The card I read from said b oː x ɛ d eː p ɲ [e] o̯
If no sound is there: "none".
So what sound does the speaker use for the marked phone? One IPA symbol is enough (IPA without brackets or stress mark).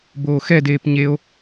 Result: e